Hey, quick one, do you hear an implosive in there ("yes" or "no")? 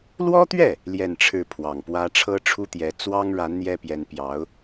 no